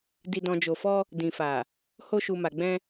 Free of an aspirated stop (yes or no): yes